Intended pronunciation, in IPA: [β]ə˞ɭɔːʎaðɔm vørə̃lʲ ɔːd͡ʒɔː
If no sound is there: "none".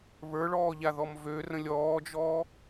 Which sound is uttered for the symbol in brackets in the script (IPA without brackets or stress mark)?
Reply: β